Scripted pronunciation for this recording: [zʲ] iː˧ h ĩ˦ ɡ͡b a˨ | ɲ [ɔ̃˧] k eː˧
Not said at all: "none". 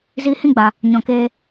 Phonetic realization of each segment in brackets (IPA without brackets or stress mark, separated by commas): z, ɔ̃˨